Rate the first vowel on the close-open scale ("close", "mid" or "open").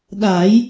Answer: open